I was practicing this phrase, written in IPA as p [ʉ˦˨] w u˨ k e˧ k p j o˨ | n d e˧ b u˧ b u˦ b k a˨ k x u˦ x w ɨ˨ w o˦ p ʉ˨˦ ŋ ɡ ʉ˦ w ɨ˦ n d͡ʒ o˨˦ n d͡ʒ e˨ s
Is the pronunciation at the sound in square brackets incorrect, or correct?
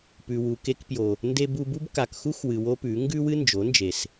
incorrect